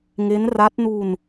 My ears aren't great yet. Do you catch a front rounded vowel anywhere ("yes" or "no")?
no